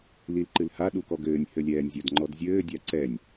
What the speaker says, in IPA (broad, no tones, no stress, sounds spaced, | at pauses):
l i l ǃ ɨ l h a ɗ u k ɔ ɡ ɘː nʲ h ɘ lʲ ɛː nʲ zʲ ɐ d ŋ͡ǃ ɔ d zʲ ɘː dʲ a ǀ ɛ nʲ